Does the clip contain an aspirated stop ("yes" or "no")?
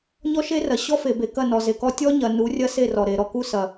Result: no